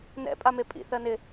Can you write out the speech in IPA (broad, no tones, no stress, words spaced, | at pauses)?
nɛ̰ pʼamepʼḭ θɜnɪ